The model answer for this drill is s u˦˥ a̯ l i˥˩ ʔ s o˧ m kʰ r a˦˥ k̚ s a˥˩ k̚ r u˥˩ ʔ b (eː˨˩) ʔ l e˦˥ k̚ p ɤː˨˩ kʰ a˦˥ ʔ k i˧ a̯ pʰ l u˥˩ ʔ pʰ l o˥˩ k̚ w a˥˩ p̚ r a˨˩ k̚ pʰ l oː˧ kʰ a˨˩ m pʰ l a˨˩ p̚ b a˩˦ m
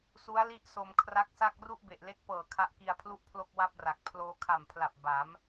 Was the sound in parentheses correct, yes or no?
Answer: no